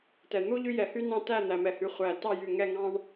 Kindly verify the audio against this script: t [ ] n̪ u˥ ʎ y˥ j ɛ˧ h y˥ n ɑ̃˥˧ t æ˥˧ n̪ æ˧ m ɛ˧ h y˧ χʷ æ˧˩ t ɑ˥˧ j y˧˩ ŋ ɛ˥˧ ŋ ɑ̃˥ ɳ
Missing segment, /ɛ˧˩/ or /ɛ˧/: ɛ˧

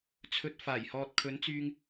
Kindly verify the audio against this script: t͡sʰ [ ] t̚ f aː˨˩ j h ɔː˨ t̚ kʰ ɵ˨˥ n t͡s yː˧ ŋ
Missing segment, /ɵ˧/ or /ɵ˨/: ɵ˨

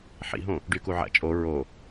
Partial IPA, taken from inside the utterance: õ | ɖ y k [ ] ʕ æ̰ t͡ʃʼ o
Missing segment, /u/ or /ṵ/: u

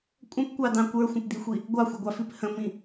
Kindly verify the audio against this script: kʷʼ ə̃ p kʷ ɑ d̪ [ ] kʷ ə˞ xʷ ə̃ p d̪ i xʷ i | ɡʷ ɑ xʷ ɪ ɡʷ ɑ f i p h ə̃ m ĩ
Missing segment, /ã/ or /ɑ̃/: ɑ̃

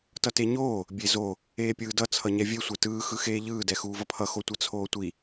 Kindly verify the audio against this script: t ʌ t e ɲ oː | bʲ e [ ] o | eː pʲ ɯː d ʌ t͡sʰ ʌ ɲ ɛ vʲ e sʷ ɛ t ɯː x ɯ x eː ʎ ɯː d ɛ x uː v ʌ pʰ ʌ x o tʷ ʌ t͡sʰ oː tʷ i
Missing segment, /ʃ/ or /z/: z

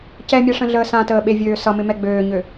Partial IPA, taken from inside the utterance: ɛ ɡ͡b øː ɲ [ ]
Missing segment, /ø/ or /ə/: ø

